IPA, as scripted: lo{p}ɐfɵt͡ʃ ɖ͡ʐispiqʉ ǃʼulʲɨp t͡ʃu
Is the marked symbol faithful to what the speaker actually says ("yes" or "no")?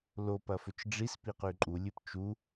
yes